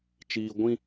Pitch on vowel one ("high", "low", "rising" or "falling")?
high